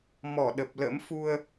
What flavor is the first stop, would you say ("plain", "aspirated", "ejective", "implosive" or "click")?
implosive